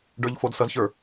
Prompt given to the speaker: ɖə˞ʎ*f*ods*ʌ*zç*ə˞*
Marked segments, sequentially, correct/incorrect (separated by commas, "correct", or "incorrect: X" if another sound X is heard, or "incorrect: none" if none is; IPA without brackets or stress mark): correct, correct, correct